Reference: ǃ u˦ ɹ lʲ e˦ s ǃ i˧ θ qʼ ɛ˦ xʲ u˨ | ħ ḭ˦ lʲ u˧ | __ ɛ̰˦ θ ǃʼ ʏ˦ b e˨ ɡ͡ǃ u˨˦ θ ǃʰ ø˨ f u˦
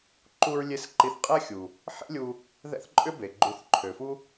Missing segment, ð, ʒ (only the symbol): ð